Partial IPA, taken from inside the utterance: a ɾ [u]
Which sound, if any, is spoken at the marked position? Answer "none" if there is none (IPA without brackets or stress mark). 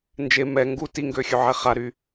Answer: y